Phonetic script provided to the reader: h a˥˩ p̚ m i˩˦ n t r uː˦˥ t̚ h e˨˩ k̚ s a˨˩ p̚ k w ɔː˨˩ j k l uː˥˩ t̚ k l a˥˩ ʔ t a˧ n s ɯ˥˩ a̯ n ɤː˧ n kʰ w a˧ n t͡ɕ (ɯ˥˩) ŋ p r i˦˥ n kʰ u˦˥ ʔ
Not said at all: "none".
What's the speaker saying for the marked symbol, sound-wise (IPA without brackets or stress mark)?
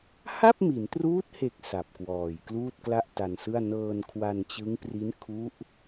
ɯ˦˥